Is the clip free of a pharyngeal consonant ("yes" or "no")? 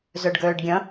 yes